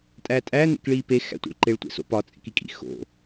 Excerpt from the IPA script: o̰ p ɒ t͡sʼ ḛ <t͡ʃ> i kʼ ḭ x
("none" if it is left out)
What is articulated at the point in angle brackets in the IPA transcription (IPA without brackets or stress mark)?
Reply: k